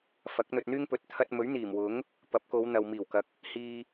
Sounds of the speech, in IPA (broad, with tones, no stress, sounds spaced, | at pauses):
f ɐ˨˥ k̚ n̪ ɵ˧ t̚ n̪ yː˥ ŋ p ɵ˨˥ t̚ t̪ʰ ɐ˧ t̚ m ɵ˨˥ ɥ n̪ iː˨˩ m w ʊ˨˥ ŋ | p ɐ˨˥ p̚ k o˨˧ w n̪ ɐ˨ w m iː˨˩ w k ɐ˨ k̚ | h iː˧